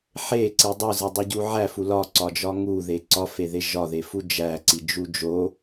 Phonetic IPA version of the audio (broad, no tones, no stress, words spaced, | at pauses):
ħeǀi dˤuzidˤuɟu ʕæfu lɒǀɒd͡ʒɒ ŋuðe ǀɒfeðe ʒɒðefu d͡ʒæǀid͡ʒu d͡ʒo